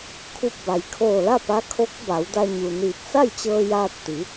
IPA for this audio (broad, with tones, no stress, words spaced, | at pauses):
kʰu˧˩p̚ba˩jkʰoː˧˩la˥˨ pa˧˥ kʰo˧˥k̚ ba˩˧wda˧ ɲu˩niː˧˩p̚ sa˥˨jt͡ɕɤː˧ jaː˧t̚t̪i˩˧